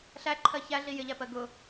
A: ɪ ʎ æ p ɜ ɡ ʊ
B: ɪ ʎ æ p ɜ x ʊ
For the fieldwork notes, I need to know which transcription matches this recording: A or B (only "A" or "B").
A